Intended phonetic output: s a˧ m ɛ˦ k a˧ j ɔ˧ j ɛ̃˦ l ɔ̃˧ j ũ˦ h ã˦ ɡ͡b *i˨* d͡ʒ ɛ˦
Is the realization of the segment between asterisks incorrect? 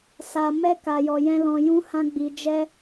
yes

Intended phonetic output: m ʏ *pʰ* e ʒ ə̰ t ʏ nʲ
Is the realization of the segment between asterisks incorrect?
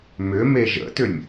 yes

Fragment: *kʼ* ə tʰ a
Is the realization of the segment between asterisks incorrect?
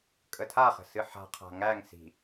no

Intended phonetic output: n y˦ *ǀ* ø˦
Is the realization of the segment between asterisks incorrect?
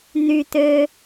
yes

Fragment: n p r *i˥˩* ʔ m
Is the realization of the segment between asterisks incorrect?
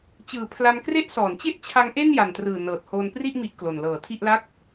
no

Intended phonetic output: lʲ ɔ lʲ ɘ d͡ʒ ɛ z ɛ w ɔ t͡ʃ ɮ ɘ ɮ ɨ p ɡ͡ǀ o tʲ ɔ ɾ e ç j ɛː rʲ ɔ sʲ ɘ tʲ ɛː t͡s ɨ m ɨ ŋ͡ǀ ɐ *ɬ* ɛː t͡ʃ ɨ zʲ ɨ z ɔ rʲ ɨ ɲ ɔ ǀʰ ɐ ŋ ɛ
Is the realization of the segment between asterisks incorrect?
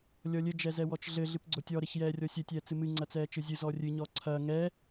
yes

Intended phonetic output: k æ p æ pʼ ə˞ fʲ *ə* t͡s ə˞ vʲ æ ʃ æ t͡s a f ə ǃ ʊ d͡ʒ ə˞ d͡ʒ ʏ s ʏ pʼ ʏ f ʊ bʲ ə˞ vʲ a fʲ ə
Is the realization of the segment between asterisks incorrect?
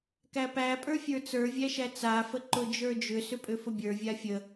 yes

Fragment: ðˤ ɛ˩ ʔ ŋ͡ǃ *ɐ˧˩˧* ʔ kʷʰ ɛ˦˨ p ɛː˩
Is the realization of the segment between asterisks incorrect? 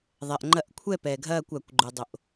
no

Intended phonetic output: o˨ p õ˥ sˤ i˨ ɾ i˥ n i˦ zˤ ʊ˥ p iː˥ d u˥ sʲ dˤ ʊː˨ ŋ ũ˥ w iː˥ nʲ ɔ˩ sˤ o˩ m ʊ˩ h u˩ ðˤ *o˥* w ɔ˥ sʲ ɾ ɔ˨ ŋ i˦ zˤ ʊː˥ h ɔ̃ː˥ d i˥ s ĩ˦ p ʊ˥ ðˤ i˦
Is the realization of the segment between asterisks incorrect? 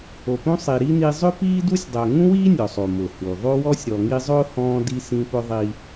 no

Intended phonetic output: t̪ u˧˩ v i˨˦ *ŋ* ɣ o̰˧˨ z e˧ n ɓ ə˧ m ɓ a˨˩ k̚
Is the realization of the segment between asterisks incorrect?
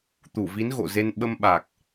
yes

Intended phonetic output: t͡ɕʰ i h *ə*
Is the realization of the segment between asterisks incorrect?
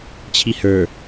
yes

